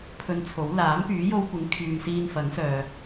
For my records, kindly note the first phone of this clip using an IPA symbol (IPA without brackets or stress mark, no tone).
pʰ